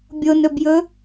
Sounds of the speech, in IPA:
bʲ o n ɵ b j ɵ

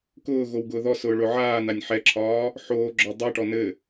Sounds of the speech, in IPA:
k ʊː ɣ o w ɡ ʊː ð ɔ s ʊː ɭ ʊ ʕ aː n a nʲ ħ ɛ ǁʰ ɒː | ħ oː ɡ͡ǁ ɔ dˤ ɛ ʈ ɔ n ɘ

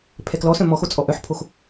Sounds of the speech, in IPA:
pʰ ɛ k l ɔ s œ̃ m ɔ x o t͡sʼ ɔ ʔ œ ħ pʰ o x

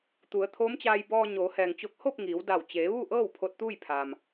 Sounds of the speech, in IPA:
t̪ u˩˧ ə̯ t̪ʰ oː˧˥ m t͡ɕ aː˧ j b ɔː˧ ɲ oː˩˧ h ɛː˩ ŋ t͡ɕ o˧˥ k̚ h o˥˨ p̚ ŋ iː˩˧ w d a˧˩ w t͡ɕ eː˩˧ ʋ u˥˨ ʔ ɤː˥˨ w pʰ o˧ t̚ t̪ uː˥˨ j pʰ a˩ m

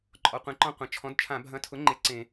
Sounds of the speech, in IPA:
ǃʼ ɔ˩ qʷ ẽ˩˧ ǃ ɔ̃˧ qʷ ɐ̃˩ t͡ʃʰ ɔ̃˩˥ d t͡ʃʰ ã˧˩˧ bʱ ɐ̃˧˥ tʰ ʊ˩˥ ŋ͡ǃ e˧ ǀ ẽ˧˩˧

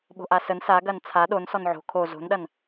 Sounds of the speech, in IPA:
ɓ o̤ ʔ a s ə n s a ɡ ɐ n t͡sʰ a ɗ o n s ɔ n ʕ o̤ kʰ o z o̤ n ɗ ɐ n

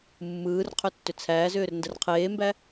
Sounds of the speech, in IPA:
mː ɯː r qʰ ʏ tː ʏ t͡sʰ æː z ʏː r n d ə r qʰ eː m b æ

